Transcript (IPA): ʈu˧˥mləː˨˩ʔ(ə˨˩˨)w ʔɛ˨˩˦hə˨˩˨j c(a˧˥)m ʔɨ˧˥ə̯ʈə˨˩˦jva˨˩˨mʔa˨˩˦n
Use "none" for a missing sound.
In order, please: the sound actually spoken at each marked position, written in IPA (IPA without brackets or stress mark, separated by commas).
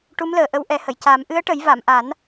ə˧, a˨˩˦